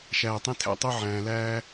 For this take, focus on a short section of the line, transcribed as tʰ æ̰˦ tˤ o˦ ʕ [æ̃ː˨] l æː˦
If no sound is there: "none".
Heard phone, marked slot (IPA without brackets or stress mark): æ̃ː˨